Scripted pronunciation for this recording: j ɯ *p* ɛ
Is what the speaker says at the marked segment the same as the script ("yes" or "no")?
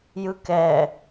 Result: no